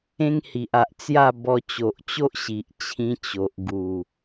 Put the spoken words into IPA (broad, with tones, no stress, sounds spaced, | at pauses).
ẽ˦ ŋ h i˨ ʔ a˨ ʔ t͡s j a˥˧ b ɔ˧ t͡ɕ o˨ ʔ t͡ɕ o˦ ʔ ɕ i˨ ʔ t͡ɕʰ ĩ˧ t͡ɕ o˨ ʔ ɡ u˨˩